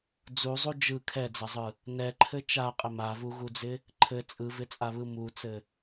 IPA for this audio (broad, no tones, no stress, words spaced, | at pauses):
d͡zuzˤu d͡ʒɯ kʰɛd͡zɐzˤɯ | nɛǃʰɘ t͡ʃaqʼɪ mavuɣud͡zɪ | ǃʰɘ t͡sʼɯvɪt͡sʼaβɯ mut͡sɘ